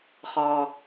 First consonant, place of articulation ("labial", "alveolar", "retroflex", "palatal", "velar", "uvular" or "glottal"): uvular